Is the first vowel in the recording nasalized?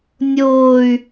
no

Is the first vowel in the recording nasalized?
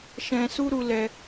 yes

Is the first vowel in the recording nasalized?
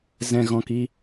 yes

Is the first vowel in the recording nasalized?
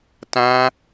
yes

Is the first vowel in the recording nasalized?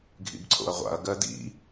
no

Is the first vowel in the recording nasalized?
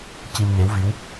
no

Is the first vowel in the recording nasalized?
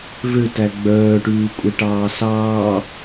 no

